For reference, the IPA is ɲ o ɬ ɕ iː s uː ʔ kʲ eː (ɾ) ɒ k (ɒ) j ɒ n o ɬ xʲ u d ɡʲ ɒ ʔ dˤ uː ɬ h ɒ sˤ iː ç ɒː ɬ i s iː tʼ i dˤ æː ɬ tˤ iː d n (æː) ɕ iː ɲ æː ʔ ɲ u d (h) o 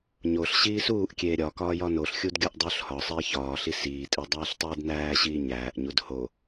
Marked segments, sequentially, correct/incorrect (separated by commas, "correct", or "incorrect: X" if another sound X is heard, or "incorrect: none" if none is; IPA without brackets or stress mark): incorrect: ɾʲ, incorrect: ɒː, correct, correct